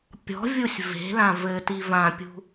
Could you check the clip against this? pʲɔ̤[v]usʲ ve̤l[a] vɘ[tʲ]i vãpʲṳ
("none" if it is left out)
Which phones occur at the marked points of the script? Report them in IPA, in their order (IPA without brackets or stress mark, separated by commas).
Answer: vʲ, ã, t